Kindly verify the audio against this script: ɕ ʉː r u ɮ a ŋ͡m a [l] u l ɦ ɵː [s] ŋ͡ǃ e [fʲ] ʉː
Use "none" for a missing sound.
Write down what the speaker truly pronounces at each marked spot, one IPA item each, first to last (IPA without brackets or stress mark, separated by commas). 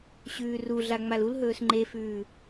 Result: l, s, f